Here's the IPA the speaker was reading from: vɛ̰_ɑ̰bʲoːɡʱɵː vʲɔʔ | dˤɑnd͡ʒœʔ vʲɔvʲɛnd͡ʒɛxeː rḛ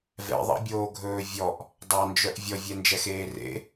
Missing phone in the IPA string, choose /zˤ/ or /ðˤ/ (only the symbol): ðˤ